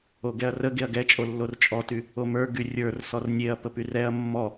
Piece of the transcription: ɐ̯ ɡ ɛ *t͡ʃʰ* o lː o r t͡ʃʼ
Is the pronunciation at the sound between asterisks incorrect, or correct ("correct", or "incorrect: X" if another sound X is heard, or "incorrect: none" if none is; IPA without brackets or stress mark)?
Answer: incorrect: t͡ʃʼ